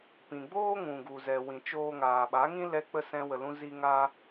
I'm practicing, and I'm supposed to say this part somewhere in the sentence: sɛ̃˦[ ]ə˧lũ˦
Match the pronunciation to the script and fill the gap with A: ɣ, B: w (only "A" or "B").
B